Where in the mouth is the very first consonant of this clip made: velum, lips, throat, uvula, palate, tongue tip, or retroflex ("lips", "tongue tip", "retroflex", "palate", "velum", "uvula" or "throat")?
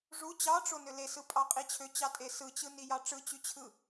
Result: retroflex